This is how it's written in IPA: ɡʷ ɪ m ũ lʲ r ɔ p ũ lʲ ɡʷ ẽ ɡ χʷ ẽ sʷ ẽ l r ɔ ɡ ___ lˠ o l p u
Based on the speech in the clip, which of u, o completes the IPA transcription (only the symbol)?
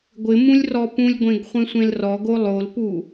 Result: o